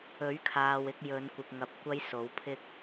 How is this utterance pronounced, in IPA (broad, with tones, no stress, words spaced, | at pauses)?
ɵ˨˥ɥkʰaː˨w ɪ˧k̚ jɵ˨˧nkʷɪ˨k̚ŋɐ˨p̚ kʷɐ˨˧j so˨˥wpʰɪ˥k̚